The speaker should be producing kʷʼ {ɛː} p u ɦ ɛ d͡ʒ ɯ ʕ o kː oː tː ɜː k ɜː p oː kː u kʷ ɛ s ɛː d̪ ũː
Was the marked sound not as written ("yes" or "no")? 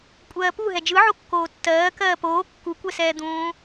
yes